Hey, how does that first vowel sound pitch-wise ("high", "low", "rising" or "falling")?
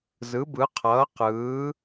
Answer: rising